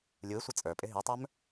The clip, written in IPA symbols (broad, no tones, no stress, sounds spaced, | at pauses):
lʲ u ɪ̯ sʷ ʌ t͡sʼ ə˞ pʼ ɪ ɦ i tˤ ə˞ m